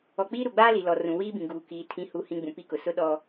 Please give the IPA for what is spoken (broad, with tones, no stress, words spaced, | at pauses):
ɔ˨k͡piː˦ ɾu˨ɡ͡baː˦li˨lɔ˨ rũ˨wiː˦bĩ˨ ɡuː˨kiː˨ tʰĩ˨hu˨hĩ˨ ɡ͡bũ˨pi˦kʊ˨ sʊ˦ɗɔ˦